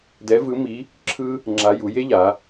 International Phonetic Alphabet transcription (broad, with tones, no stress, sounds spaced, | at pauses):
d ɛ˧˥ v ɯ˧˥ m i˧˥ | ǁʰ ɯ˥ | ŋ͡ǁ a˧˥ j u˩˧ j e˥ ʎ a˩˧